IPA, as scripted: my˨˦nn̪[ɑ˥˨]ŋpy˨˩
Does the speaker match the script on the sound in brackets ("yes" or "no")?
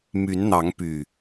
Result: no